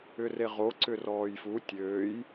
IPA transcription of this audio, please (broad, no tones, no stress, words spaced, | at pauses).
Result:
ʏreʁo ǀʏrɔːjfu tʲøːj